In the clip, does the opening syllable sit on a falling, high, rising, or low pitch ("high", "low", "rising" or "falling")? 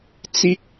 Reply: high